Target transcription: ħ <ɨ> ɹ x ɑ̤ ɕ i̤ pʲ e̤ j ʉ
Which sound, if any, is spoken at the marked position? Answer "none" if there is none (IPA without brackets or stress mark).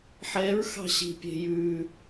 ɛ